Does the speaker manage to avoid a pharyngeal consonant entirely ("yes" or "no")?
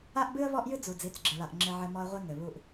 no